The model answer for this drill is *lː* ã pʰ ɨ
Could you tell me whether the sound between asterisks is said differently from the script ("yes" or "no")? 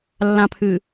no